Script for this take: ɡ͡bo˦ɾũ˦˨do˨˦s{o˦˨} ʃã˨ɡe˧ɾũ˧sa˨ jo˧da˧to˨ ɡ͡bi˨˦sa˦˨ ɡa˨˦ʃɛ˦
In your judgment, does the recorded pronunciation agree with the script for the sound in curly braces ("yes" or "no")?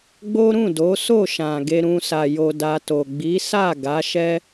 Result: yes